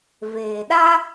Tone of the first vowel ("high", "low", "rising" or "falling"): low